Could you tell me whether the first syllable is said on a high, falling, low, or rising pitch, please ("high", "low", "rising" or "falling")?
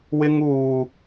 high